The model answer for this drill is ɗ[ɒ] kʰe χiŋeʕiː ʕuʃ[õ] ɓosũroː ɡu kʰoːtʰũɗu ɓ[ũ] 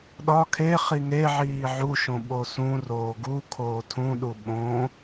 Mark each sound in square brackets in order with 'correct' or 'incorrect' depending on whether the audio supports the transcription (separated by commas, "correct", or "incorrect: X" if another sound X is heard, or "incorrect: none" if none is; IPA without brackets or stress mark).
correct, correct, incorrect: õ